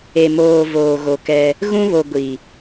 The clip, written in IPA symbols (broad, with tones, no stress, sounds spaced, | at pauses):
e˨ m oː˨ v oː˨ ɣ o˨ k ɛ˦ | ɣ ũ˦ β o˨ ɡʷ i˨